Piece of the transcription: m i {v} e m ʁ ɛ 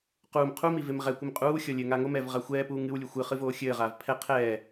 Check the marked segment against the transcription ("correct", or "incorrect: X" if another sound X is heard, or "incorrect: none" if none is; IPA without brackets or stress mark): correct